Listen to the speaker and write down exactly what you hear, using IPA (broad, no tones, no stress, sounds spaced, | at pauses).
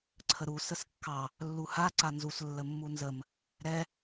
ǀʰ ə ɾ u s ə s kː ɑ | lː u h a ǀ a n z u s lː ə mː u n z ə m | ɾ ɛ